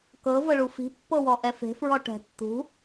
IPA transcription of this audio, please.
k ɤ v ɤ ɭ u f i̤ pː ɤ w ɔ ʔ ɛ f e̤ f ɹ ɔ ʈ ɛ̤ tː ṳ

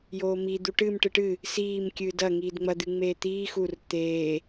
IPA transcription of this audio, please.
j oː m i d̪ u ʈ ɨ m ʈ ɨ ʈ ɨ | s iː m kʲ ɨː d ɐ ŋ iː d ŋ͡m ɐ d̪ ɨ ŋ͡m eː t̪ iː x u r t̪ eː

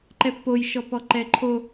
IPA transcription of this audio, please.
ǃ ɛ pː o j ʃ ɔ p ɔ ǃ ɛ ǃʰ o

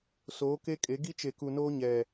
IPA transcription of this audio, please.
s oː˨˦ k e˦ kʼ e˨˦ ɡ i˦ t͡ʃ e˨ k u˨ n oː˦ ɲ ɛ˨

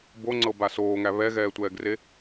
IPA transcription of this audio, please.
b o ŋ͡ǀ ɤ b a s oː ŋ æ β ɛ ɣ ɛː tʷ ɛː ɡ r e

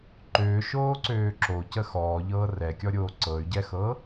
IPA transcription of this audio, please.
ǃ øː ʃ oː ǀ øː ǁ o c ə x ɔː ʎ ɤː r ɛ kʲ ɔ ɾʲ oː ǀ ɤ y̯ ɟ ɛ x ɤ

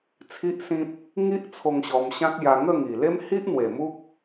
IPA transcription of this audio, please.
t͡sʰ i˦ ʔ s ĩ˦ p̚ | ŋ i˦ ʔ t͡sʰ o˧ ŋ ɕ ɔ˧ m ɕ ã˦ k̚ j a˧ ŋ ə˥˧ ŋ i˨˩ l e˦ m h i˦ ʔ n̪ w e˨˩ m u˦ k̚

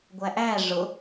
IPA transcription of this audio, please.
ɡʷ æ ʔ æ ʐ ʊ

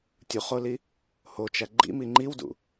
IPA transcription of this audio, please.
tʲ u χ o l i | h o t͡ʃ æ ɡ͡ǃ ḭ m i ŋ͡ǃ i w d ṵ

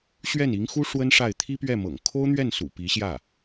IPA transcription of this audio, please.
ɕ ɥ ɛ˥˩ n i˧˥ ŋ x u˥ ʂ w ə˥ n ʂ a˥˩ ɪ̯ t̪ʰ i˥ p ɥ ɛ˥˩ m ɤ̰˨˩ ŋ kʰ o˥ ʊ̯ n̪ ɥ ɛ˥˩ n s ṵ˨˩ p i˧˥ ɕ j ä˥˩

